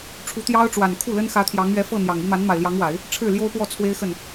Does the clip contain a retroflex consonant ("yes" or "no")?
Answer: yes